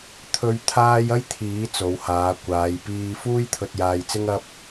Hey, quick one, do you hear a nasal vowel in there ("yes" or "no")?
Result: no